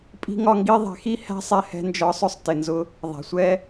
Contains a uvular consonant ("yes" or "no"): no